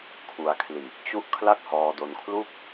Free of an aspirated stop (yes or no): no